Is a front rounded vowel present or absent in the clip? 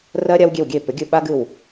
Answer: present